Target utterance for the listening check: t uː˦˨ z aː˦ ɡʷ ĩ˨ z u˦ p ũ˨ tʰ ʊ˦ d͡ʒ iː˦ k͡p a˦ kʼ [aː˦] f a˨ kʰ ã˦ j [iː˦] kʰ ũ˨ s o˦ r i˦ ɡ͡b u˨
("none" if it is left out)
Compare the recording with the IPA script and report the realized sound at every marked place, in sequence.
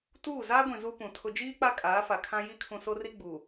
aː˨˦, i˦

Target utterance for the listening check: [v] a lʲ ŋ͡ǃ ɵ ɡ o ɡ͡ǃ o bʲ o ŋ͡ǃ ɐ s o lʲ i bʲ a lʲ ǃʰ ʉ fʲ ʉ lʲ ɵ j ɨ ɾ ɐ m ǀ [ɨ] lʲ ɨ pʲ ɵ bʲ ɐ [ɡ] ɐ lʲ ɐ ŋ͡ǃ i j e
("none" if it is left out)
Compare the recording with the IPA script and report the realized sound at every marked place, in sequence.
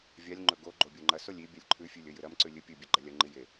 vʲ, ʉ, ɡ͡ǃ

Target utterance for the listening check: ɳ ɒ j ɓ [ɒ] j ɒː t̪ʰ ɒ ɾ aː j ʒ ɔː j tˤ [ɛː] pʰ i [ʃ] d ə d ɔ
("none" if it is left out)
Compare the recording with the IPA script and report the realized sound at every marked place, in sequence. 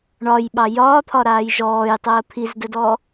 ɑ, əː, z

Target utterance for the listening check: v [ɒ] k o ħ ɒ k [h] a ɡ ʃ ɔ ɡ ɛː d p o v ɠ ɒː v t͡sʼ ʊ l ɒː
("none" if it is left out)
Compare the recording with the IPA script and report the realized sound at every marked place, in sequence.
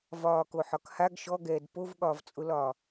ɒː, h

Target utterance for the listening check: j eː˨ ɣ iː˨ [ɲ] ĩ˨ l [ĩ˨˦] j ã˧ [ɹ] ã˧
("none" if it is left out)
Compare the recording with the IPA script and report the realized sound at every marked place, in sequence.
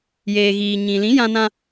ɲ, ĩ˨˦, n

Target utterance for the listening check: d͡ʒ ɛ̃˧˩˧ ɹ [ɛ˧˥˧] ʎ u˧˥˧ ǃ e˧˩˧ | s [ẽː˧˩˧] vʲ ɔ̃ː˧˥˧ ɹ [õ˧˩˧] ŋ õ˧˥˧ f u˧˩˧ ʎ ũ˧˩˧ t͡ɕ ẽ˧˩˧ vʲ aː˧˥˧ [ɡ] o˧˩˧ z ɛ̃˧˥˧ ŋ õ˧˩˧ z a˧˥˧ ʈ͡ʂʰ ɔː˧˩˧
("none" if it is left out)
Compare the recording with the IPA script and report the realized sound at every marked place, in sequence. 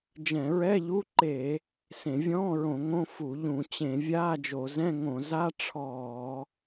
ɛ˧˥˧, ẽ˧˩˧, õ˧˩˧, d͡ʒ

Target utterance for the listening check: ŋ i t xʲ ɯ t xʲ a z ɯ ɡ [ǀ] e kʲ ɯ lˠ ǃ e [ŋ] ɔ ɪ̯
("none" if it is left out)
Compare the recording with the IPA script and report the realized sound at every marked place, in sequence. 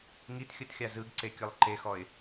ǀ, x

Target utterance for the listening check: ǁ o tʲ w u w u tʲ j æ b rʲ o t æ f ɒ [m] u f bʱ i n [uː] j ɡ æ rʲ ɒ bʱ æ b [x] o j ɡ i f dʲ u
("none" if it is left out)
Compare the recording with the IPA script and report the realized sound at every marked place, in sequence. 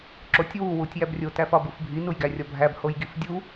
b, u, h

